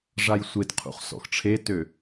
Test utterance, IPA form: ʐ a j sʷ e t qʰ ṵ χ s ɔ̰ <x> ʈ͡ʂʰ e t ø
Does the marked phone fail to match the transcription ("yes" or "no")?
no